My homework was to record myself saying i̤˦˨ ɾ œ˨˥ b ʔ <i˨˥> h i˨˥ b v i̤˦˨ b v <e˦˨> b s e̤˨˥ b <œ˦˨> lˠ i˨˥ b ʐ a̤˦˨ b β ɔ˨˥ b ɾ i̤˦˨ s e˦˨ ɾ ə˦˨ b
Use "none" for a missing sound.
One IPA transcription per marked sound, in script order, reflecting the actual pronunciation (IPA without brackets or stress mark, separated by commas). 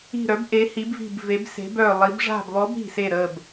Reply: e˨˥, e˨˥, œ˦˨